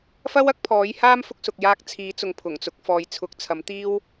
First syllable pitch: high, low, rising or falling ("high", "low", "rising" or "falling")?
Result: high